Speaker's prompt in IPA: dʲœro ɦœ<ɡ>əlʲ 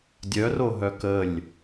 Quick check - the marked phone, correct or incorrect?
incorrect